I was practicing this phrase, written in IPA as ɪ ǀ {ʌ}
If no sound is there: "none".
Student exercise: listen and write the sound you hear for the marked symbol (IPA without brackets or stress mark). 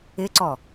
ɔ